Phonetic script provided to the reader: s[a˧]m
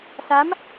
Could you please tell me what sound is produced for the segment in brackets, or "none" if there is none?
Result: a˦˥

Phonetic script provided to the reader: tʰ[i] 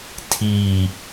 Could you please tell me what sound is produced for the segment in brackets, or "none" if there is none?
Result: i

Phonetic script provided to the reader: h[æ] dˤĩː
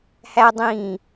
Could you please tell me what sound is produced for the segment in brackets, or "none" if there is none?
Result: æ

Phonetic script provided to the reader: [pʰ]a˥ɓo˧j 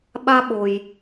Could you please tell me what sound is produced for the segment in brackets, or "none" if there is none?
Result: ɓ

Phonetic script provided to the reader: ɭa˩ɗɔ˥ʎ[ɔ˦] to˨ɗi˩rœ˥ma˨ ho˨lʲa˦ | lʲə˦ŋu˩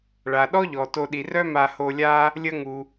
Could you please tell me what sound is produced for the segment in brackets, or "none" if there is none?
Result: ɔ˩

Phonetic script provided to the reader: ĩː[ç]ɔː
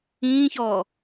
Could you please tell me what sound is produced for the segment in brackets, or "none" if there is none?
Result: ç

